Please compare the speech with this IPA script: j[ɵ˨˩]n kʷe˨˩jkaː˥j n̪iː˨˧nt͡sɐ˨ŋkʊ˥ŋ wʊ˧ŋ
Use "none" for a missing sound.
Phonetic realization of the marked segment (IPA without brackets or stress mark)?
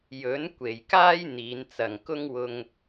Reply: ɵ˨˥